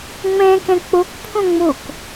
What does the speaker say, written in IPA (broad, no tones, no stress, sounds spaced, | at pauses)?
ŋ͡m ẽ k ẽ k͡p u k pʰ ũ ŋ͡m u k